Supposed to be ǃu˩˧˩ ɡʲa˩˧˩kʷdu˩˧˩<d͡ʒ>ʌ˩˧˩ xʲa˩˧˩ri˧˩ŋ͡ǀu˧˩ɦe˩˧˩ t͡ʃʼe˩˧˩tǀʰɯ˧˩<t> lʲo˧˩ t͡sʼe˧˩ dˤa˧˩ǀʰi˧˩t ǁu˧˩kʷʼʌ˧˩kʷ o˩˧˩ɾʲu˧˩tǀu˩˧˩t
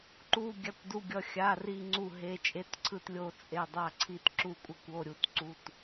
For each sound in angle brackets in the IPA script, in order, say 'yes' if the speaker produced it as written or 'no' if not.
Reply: no, yes

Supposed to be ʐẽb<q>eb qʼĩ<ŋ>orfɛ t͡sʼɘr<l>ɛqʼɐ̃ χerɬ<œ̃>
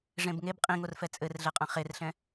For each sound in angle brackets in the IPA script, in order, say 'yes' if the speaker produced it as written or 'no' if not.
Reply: no, yes, no, no

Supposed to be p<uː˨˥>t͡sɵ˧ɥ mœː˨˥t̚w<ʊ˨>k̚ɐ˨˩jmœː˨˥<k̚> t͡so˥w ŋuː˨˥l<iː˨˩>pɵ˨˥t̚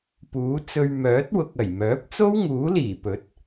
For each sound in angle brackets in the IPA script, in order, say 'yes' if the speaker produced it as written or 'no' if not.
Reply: yes, yes, no, yes

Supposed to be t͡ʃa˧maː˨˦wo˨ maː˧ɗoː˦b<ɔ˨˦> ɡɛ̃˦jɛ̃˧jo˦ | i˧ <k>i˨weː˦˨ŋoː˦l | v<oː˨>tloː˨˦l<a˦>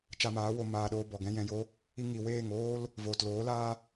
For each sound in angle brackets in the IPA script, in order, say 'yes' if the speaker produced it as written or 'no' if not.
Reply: no, no, yes, no

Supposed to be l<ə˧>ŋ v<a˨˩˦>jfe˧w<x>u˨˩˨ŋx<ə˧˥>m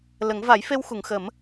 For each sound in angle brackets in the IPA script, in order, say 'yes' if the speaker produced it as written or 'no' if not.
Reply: no, yes, yes, no

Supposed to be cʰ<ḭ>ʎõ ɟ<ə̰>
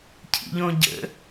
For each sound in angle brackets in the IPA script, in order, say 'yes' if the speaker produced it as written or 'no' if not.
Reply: yes, yes

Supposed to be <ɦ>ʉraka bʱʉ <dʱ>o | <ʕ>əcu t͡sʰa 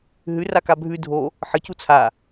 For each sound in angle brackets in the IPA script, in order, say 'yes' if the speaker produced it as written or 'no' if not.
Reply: yes, yes, no

